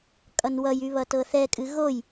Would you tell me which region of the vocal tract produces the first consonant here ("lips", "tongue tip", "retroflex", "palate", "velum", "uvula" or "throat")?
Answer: velum